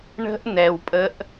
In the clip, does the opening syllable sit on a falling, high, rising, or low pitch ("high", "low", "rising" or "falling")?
high